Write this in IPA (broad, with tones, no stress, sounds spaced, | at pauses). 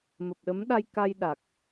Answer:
m ə˨˩ p̚ ɗ ə˨˦ m ɗ a˧ j k a˧ j ɗ a˨˩ k̚